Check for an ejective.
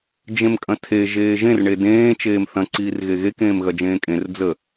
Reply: present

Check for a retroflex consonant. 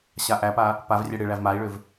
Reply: present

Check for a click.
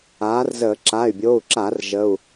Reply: present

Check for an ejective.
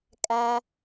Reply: present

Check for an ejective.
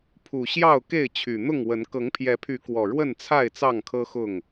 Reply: absent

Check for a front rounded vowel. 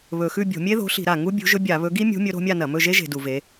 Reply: absent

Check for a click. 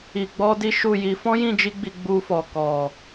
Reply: absent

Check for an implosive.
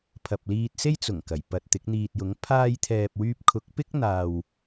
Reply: absent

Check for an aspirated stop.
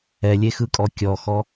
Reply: absent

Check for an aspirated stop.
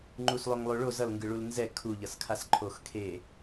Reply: present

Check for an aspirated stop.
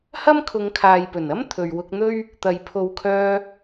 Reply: present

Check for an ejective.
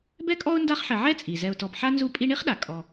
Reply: present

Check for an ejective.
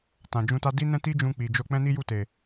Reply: absent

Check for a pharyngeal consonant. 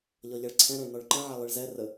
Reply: present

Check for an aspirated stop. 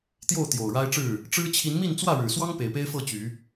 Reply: present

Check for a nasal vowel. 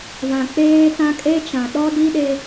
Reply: present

